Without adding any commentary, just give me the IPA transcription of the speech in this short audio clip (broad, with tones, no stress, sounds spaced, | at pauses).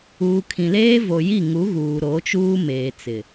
uː˨ kʰ ĩ˨ l eː˦ v o˨ j i˦˨ ŋ u˨˦ ɣ uː˨ ɾ o˨˦ t͡ʃ uː˦ m eː˨ t͡s ɪ˨